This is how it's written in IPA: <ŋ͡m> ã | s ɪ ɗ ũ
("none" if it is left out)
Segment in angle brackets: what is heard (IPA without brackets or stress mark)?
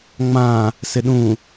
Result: ŋ͡m